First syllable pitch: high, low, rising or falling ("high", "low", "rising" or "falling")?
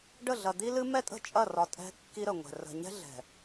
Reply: falling